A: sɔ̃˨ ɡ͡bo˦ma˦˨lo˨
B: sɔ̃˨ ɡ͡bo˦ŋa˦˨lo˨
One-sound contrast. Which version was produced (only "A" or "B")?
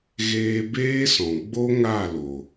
B